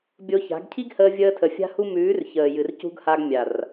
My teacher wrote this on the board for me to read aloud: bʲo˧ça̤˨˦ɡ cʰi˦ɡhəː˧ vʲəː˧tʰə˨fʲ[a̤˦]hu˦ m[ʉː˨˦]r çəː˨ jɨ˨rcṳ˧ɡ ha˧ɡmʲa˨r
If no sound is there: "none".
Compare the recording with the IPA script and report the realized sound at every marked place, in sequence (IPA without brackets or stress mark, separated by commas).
a̤˦, ʉː˨˦